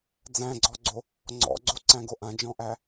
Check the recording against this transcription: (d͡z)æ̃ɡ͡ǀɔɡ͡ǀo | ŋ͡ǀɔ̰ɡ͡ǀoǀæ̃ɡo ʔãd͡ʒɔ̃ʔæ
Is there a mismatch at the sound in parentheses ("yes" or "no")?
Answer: no